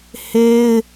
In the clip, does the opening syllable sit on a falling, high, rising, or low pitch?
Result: high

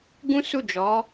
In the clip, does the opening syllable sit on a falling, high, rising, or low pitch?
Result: high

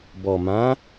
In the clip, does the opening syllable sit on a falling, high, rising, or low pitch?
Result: low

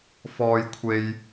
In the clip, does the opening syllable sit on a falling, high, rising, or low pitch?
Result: low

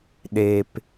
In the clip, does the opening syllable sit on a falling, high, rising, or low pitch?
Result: low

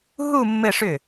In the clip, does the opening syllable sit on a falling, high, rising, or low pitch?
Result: falling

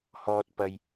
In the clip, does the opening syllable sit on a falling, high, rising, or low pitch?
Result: low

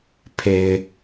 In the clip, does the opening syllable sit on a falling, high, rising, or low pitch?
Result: low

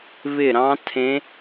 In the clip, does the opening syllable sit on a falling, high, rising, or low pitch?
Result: falling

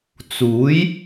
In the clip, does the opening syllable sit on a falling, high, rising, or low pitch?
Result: rising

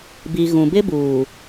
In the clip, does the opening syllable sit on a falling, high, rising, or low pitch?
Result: low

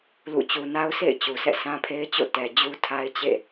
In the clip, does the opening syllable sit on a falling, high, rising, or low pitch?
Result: falling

